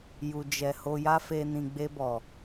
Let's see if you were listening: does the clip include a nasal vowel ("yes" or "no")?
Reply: yes